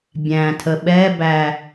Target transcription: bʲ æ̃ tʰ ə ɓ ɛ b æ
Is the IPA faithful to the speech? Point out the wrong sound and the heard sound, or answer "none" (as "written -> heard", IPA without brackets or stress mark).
none